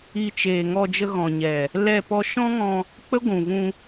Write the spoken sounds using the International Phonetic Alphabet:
i˧t͡ʃeː˨ ŋɔ˧d͡ʒə˧ ɣɔ̃˨ɲɛ˨ | lɛ˦˨pɔ˦ ʃɔ̃˦ŋɔ̃˧ | k͡pə˦ɡʷũ˨vũ˧

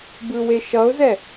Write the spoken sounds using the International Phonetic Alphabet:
bɯweʃʌʊ̯zɛ

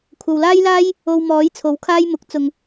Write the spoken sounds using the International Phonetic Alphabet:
kʷʰɐ˨wlaː˥jlaː˥j | o˧wmɔː˨˥j t͡sʰo˨˥wkʰaː˥j mʊ˨˥k̚t͡sʊ˨ŋ

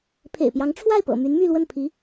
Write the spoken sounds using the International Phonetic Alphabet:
pʰḛ˨˩ɪ̯pjɑ˧˥ŋ ʈ͡ʂʰwa˥˩ɪ̯pɤ̰˨˩ my˧˥nmy˥˧lwə˥˩npʰi˧˥

